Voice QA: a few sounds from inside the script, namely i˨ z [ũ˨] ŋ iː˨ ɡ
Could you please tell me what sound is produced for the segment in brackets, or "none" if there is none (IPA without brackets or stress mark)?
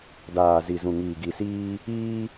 ũ˨